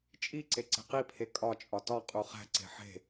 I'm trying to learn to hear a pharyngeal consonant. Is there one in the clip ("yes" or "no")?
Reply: yes